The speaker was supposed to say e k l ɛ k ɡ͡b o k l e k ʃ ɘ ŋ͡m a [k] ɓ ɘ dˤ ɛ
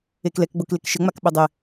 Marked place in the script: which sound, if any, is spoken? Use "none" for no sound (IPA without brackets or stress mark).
k